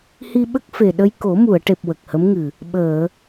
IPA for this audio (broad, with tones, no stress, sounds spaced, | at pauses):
h i˧ ɓ ə˦˥ k̚ f e˨˩ ɗ ə˧ j k o˨˩˦ m u˨˩˨ ə̯ ʈ e˨˩ p̚ w ə˨˩ k̚ h ə˧˥ m ŋ ɨ˨˩ | ɓ əː˨˩˨